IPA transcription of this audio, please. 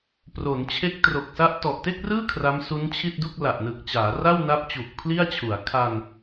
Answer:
pro˩˦nt͡ɕʰe˦˥k̚tro˨˩k̚sa˥˩ʔ tɔ˨˩ʔte˥˩k̚rɯː˥˩ kʰra˦˥msu˦˥nt͡ɕʰi˥˩t̚ du˥˩k̚la˨˩ʔnɯ˨˩k̚t͡ɕaː˩˦ ra˥˩wna˦˥p̚ t͡ɕu˨˩k̚pʰli˥˩a̯t͡ɕʰu˩˦a̯ kʰa˧n

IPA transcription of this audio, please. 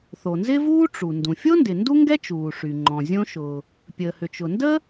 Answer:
θo˩nzɪ˥vuː˥ ʈ͡ʂu˩ ndũ˩fʲo˥ ndɪ˩ ndu˥ ŋɡɛ˥t͡ʃuː˩ʂy˩ŋ͡ǃɔ̃˩ zʲõ˥ʃʊ˩ | pʲəː˩hʏ˩t͡ʃʊ˩ndə˥

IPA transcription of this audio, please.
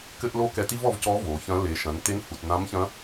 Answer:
kɘ˥ʔlo˥ kɛ˧ti˥vɔ˧vcɔ˧˥ vo˩˧çɐ̃˧˥ le˩˧ ʃɐ̃˩˧nte˧˥n hu˩tnã˧˥mçɐ̃˧˥

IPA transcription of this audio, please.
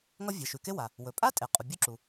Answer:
ŋʌ˥vʲe˩ ʃʉ˩ke˥ wa˩ | wɵ˩pʼa˥tʼe˩ qʼu˩bʲu˥ǁu˩

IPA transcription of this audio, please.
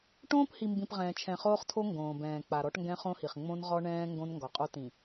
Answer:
ʈõː˦phi˨mbĩ˨p ʁɛ̃ː˨t͡ʃʰɛ̃˨χoː˦χtʰo˦ ŋɡõː˨bɛ̃ː˨ k͡pa˨ɾɔ˦ʈ ŋɡɛ̃˦χõ˦hi˨χ ŋ͡mõ˦nʁɔ˦ɳɛ̃ː˦ ŋɡõ˦nŋɡɔ˨qʼo˦ tĩ˨

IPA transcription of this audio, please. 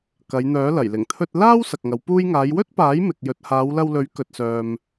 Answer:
kɐ˨˧jn̪œː˨˥lɐ˨˩jlɪ˨˩ŋ t̪ʰɵ˧t̚laː˥w sɐ˨k̚ŋɐ˨˧wpuː˥j ŋaː˨˧jwɵ˥t̚paː˨˥j mɪ˨k̚jɵ˨˥t̚ haː˨˧wlɐ˧wlɵ˨˥ɥ kɵ˨t̚sœː˨m

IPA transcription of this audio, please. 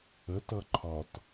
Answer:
ətʌ ǃʰɒt

